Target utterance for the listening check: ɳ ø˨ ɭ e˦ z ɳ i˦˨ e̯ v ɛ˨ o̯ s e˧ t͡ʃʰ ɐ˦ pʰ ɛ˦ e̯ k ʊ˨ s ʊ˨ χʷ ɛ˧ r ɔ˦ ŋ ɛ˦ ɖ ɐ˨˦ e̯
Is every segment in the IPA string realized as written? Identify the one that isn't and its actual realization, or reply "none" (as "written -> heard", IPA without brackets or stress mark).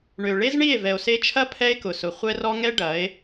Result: none